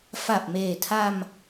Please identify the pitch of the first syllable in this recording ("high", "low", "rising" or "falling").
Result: low